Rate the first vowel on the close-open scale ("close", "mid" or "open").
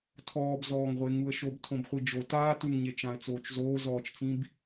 mid